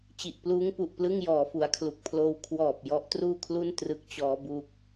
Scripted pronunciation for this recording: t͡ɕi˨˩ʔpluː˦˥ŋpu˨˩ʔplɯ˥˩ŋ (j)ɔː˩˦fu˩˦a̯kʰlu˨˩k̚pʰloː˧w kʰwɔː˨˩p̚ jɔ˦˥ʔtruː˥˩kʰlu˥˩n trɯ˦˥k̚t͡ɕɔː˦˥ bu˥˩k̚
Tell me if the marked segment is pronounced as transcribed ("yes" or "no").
yes